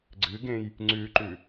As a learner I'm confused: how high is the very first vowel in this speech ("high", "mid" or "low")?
high